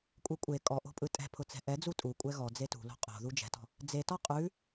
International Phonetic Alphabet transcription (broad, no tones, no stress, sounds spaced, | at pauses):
kʷʼ e kʷʼ e kʼ ɔ ʔ o̤ pʼ ɯ tʼ ɛ̤ pʰ ʊ t͡s ɛ̤ ʔ ɛ d͡z u tʼ u kʷʼ ɛ ɣ ɔ d͡z e t ṳ l o̤ qʼ o̤ ð u d͡ʒ ɛ̤ t ɔ̤ | d͡z e t ɔ qʼ ʉ